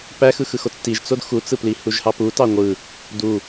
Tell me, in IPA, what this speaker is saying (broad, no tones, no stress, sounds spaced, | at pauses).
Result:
p æ x ɯ x ɯ x o t͡s t i ʒ t͡s o d x u t͡s ɯ p l i h u ʒ h ɑ p u t ɑ ŋʷ ɯ | d u